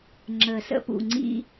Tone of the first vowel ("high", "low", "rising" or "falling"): low